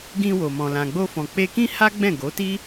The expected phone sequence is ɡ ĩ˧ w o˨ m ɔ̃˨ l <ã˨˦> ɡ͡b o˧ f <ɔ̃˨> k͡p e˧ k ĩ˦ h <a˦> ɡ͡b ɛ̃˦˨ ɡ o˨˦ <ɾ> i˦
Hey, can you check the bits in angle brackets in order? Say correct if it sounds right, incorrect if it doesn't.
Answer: incorrect, correct, correct, incorrect

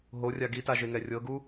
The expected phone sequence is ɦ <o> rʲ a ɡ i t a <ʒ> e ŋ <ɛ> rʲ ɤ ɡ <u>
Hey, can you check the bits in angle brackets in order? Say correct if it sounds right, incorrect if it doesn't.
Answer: correct, correct, correct, correct

